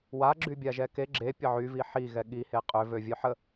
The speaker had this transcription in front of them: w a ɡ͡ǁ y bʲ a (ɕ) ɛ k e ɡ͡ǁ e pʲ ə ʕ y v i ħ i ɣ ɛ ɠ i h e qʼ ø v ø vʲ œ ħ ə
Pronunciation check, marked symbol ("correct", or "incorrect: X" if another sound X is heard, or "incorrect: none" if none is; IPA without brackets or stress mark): incorrect: ʒ